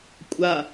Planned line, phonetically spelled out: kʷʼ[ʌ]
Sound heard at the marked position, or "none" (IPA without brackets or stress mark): a